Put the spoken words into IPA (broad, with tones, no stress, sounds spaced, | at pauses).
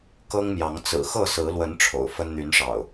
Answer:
k ɤ˦ ŋ m j ɑ˨˦ ŋ t͡s ɹ̩˨˩ x ɤ˥˨ s ɹ̩˨˦ l w ə˨˦ n ʈ͡ʂʰ o̰˨˩ ʊ̯ f ə˦ n n̪ y˨˦ n ʂ ɑ̰˨˩ ʊ̯